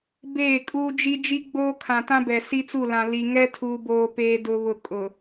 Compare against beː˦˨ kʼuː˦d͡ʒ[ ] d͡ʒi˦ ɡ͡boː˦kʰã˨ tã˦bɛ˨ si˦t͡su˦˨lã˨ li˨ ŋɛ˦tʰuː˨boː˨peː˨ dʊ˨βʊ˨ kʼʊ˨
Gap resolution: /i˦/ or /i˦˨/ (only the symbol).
i˦